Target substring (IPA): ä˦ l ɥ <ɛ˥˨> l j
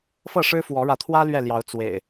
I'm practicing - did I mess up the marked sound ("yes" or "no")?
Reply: no